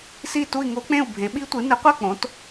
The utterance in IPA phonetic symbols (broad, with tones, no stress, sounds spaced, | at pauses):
s i˥˧ t u˥˧ i̯ ŋ o˦˥ k͡p ẽ˥˧ u̯ bʱ ẽ˨˥ ɓ i˦˥ tʷ ɨ˨˥ n ɨ˨˥ qʷ a˥˧ k͡p õ˨˥ t